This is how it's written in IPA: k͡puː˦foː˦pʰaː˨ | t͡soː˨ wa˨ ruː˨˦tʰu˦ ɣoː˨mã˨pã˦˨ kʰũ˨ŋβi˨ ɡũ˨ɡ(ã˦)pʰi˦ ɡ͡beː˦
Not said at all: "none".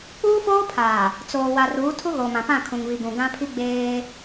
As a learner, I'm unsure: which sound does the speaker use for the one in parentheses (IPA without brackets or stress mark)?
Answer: ã˦